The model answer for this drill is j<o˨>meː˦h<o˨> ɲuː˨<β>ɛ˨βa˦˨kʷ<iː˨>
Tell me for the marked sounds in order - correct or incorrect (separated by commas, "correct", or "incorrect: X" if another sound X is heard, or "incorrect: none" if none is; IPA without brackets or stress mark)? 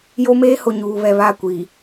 incorrect: o˦, correct, correct, incorrect: i˨